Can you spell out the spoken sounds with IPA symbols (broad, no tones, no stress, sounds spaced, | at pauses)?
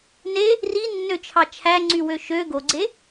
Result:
n e | r i nː ø t͡ʃʰ ɑ t͡ʃʰ æ ŋ͡ǀ y w ø ʃ ø ɡ o ɡ͡ǀ e